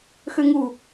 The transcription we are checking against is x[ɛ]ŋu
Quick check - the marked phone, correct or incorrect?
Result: incorrect